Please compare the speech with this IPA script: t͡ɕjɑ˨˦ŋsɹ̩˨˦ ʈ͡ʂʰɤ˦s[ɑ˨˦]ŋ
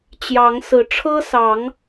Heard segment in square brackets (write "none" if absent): ɑ˨˦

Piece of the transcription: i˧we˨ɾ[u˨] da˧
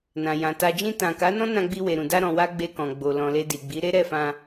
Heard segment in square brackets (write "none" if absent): ũ˨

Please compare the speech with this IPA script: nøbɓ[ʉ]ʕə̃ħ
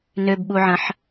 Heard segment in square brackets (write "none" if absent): u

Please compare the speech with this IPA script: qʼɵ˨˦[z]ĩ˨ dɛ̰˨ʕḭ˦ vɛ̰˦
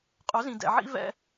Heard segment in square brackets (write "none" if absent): z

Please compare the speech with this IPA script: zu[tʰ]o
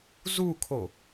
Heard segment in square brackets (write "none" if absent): kʰ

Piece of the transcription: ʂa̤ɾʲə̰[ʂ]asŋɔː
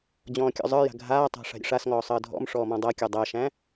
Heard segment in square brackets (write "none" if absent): ʂ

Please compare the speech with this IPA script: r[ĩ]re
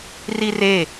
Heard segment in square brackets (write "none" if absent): i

